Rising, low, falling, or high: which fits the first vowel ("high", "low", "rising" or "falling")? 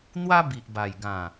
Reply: high